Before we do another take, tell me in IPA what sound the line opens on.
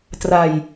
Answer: t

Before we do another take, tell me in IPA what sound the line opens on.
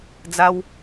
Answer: d͡z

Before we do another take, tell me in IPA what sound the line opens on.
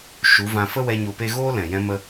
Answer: ʃ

